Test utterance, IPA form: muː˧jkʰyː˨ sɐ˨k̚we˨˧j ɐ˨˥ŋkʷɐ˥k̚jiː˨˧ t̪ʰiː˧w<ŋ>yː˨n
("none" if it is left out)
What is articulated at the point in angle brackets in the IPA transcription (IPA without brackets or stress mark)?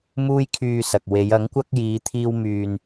m